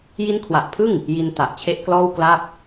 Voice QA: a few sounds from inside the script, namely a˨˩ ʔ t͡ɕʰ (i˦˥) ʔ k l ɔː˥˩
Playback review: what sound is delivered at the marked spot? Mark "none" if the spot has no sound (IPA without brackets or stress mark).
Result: e˦˥